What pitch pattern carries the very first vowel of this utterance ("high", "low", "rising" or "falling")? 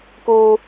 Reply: high